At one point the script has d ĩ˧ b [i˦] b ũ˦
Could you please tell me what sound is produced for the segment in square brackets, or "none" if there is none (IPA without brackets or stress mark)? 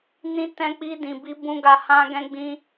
i˦